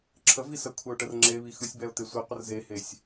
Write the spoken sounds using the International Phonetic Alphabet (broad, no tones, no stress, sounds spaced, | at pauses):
ǁʰ ə v i s ə kʷʰ ɛ ʊ̯ ʈ ə r ŋ͡ǁ e β i x ɯ sʲ b ɛ ʊ̯ t̪ e sʷ i qʷ ə r z e h e sʲ